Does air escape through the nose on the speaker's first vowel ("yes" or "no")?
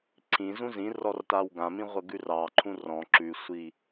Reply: yes